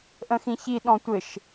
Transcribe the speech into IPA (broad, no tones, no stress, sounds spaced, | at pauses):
ʔ ə̃ x ĩ ç i ɗ ɔ̃ tʷ ɘ ʃ